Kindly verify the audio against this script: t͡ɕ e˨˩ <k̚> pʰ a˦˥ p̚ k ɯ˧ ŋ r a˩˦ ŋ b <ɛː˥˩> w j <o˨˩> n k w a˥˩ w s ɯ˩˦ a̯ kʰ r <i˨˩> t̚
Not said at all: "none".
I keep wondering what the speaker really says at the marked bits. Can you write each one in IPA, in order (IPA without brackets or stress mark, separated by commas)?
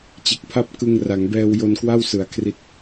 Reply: k̚, ɛː˧, o˧, i˦˥